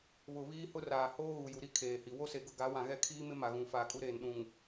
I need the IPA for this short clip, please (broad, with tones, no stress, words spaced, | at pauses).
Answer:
βʊ˨ βiː˦hʊ˦raː˨ hoː˦ ɣu˨ju˨ ɾi˦ kʰeː˨hi˨ wo˦se˨ɡʊ˦˨ɡa˨˦ wã˨ɣɛ˦ kʰiː˦mɪ˦ ma˨ɣũ˨ faː˨kʼu˦ɾeː˨n ɗũ˨ŋ